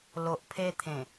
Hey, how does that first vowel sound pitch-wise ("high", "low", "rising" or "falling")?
low